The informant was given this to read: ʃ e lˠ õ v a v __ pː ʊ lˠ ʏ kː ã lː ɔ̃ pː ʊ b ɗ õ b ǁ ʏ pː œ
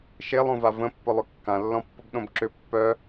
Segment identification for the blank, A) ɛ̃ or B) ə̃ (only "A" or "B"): B